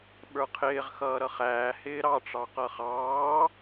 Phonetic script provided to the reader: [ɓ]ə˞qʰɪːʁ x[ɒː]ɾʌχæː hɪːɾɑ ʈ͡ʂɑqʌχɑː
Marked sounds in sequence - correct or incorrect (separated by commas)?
correct, incorrect